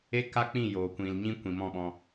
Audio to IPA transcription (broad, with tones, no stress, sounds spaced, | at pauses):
e˦ k a˦ k͡p ĩ˦˨ j oː˨ kʷ ĩ˨ l ɲ ĩ˦ kʷ ĩ˨ m ɔ̃˦˨ ɓ ɔ̃˧